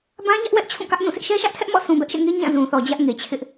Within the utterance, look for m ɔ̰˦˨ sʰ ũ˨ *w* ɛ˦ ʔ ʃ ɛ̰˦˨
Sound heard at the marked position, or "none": b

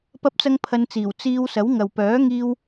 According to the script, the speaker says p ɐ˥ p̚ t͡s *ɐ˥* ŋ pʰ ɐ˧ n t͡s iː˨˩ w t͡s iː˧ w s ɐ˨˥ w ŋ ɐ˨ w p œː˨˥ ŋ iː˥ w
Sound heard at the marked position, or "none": ɐ˥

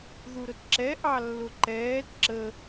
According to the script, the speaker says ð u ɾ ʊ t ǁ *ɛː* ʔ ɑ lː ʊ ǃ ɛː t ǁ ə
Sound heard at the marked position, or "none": ɛ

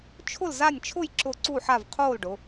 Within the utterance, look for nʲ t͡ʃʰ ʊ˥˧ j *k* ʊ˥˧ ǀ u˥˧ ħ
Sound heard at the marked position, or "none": ǁ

